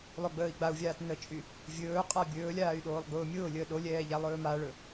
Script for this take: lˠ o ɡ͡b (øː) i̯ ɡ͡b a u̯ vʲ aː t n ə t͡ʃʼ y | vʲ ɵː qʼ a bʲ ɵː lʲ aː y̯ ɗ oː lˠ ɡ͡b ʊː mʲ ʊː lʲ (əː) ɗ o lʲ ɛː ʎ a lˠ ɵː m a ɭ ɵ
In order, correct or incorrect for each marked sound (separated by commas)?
incorrect, correct